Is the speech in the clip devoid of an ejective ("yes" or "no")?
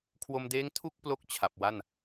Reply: yes